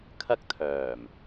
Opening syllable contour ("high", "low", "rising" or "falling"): high